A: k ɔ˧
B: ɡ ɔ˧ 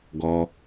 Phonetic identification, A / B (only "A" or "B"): B